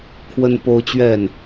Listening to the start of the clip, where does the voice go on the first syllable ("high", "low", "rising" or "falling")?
high